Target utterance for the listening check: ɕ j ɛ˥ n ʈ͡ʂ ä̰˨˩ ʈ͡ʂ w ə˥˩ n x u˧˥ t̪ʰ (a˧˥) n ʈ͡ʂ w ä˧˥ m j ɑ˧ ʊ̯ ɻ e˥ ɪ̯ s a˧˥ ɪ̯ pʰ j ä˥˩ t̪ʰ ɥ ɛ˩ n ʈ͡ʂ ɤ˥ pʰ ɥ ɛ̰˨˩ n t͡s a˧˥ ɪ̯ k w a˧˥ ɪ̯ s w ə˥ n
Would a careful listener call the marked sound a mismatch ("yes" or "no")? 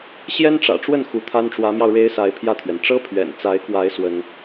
yes